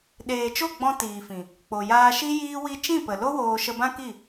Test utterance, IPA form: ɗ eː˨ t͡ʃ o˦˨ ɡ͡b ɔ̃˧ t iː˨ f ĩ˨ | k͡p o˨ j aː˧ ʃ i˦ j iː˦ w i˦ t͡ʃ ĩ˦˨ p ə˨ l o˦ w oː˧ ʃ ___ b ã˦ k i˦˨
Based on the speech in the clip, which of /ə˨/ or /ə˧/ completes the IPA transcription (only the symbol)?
ə˧